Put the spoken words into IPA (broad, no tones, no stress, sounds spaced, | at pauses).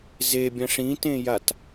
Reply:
z e bʲ ɐ̃ ʂ ĩ t ẽ j a t